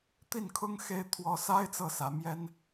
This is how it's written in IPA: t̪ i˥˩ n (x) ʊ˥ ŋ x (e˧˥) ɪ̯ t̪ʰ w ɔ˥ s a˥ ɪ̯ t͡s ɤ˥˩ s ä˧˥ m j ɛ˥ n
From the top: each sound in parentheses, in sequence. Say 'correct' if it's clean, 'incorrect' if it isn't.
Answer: incorrect: kʰ, incorrect: e˥

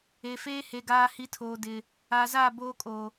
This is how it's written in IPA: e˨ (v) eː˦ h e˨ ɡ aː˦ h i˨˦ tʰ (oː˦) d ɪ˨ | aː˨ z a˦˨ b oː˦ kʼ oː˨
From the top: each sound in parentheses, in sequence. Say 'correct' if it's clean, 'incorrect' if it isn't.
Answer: incorrect: f, incorrect: oː˨

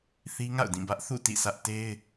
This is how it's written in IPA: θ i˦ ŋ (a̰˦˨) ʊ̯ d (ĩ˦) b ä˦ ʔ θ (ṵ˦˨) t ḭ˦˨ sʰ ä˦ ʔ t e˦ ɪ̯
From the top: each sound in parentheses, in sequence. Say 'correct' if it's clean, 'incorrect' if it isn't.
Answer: correct, incorrect: ĩ˦˨, correct

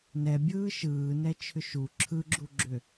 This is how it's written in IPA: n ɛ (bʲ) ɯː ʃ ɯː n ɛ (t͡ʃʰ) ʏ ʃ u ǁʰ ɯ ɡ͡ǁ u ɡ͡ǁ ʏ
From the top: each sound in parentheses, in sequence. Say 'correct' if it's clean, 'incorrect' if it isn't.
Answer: correct, correct

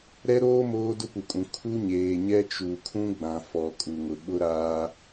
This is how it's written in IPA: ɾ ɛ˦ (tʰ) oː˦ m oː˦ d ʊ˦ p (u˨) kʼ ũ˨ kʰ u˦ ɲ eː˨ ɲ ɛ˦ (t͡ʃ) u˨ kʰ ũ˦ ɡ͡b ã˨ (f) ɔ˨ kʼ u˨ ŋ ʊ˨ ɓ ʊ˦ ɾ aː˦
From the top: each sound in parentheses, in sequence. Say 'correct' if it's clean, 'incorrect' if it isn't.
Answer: incorrect: ɾ, correct, correct, correct

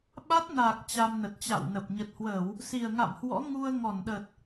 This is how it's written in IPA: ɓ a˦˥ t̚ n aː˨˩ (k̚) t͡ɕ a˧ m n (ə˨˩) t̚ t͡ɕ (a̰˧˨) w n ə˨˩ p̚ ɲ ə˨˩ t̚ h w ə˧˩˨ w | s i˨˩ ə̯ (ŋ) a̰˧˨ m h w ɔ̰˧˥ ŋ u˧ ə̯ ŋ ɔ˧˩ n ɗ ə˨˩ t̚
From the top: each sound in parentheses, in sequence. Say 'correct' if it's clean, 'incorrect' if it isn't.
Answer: correct, correct, correct, correct

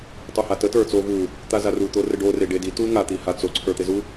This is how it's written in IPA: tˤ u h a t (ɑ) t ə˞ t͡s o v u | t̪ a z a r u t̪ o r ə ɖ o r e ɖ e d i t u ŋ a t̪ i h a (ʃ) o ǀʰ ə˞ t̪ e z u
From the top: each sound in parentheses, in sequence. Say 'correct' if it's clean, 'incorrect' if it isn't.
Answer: incorrect: ə, incorrect: t͡s

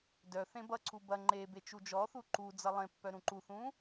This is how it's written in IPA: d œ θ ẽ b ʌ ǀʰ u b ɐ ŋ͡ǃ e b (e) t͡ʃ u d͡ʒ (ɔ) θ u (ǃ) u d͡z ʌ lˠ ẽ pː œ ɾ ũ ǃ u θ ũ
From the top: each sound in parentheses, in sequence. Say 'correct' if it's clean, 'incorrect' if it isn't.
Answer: correct, correct, correct

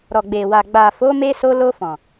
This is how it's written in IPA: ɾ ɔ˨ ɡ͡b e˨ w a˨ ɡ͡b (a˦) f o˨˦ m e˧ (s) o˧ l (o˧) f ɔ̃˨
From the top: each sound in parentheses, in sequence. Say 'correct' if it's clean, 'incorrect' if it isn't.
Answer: incorrect: a˨, correct, correct

